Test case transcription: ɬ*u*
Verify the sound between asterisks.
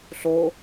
incorrect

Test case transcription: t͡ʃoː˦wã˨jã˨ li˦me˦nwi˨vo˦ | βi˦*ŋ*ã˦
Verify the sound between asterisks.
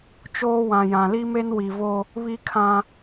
incorrect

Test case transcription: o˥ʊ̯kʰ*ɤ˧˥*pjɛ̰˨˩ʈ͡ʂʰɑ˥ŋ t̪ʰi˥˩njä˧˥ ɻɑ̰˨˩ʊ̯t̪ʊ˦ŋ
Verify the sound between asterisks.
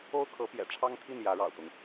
correct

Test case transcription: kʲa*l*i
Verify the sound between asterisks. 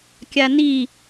incorrect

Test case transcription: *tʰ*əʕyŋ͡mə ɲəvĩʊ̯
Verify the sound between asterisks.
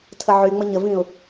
correct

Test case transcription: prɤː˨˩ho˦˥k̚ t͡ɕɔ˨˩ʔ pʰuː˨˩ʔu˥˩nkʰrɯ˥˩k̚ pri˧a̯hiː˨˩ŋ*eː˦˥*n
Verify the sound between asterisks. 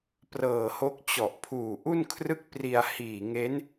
incorrect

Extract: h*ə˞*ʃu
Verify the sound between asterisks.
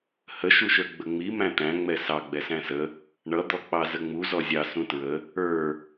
incorrect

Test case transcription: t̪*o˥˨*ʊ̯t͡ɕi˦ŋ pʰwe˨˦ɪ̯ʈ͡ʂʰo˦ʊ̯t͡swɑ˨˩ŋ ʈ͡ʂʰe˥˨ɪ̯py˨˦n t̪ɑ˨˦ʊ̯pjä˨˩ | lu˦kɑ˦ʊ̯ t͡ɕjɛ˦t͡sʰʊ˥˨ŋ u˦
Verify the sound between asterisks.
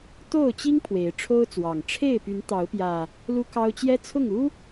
correct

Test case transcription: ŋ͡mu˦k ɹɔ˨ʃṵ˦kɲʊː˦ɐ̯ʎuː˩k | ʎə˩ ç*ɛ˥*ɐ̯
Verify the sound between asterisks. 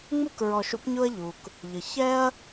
incorrect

